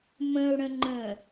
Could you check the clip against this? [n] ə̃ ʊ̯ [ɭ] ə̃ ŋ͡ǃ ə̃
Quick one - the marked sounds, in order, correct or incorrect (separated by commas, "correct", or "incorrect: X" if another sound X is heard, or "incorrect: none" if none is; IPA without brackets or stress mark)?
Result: incorrect: m, incorrect: ɽ